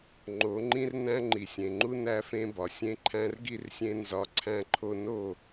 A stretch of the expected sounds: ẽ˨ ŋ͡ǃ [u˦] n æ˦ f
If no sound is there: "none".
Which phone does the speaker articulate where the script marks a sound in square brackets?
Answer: u˦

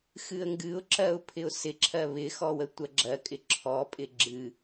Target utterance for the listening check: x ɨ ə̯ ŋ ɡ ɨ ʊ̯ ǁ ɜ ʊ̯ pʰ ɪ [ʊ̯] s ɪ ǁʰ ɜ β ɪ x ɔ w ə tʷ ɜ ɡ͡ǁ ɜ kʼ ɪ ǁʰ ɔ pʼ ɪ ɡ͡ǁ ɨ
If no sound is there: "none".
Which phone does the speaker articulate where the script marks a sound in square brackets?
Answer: ʊ̯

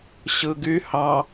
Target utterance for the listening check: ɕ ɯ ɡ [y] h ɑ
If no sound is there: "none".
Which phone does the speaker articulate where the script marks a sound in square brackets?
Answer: y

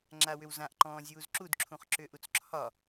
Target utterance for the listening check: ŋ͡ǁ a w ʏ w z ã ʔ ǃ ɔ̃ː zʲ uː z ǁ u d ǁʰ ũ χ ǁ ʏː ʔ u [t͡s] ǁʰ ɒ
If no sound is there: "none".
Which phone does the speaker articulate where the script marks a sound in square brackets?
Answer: t͡s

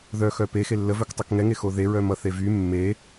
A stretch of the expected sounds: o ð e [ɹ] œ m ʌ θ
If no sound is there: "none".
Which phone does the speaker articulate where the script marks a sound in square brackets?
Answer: ɹ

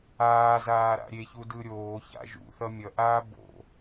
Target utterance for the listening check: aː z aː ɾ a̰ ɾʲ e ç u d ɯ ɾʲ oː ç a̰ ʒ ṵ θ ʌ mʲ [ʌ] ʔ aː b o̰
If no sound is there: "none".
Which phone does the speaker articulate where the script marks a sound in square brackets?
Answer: ʌ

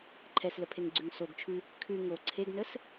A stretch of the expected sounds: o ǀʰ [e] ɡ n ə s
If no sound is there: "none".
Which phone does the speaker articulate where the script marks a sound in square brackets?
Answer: e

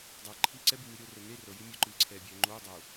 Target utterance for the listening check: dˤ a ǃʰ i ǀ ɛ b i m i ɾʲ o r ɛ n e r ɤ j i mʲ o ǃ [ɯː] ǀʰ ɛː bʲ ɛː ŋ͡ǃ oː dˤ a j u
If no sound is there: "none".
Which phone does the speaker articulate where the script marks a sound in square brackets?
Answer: ɯː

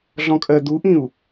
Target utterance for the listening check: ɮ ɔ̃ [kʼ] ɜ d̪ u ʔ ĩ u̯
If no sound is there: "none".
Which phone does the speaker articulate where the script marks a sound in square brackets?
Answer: kʼ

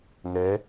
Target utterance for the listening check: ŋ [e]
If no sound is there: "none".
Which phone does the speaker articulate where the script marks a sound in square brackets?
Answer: ɛ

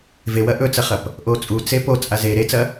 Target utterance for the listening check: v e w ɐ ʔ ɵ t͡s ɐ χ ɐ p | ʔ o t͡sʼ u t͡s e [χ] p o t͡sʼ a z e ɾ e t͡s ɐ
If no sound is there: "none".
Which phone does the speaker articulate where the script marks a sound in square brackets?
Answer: none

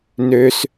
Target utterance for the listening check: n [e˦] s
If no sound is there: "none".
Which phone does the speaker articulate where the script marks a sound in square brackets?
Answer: ø˦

